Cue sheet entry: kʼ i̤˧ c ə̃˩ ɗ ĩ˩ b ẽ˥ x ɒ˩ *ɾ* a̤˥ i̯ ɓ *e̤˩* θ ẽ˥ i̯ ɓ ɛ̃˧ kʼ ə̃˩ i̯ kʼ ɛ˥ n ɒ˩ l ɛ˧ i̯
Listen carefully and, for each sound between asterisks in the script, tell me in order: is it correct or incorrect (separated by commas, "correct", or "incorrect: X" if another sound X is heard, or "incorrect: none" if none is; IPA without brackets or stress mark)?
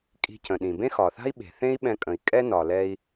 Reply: incorrect: θ, correct